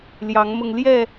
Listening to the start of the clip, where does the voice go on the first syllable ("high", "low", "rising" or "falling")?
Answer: rising